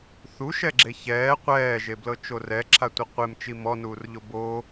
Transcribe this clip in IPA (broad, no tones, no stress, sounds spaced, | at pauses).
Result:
θ u ʃ ɛ ɡ͡ǁ e ç ɛː qʷ ɛː ʒ e b l ɤ t͡ʃ o r ɛ ǁʰ a tʷ i qʷ e m t͡ʃ i m ɔ n uː r ʎ o b o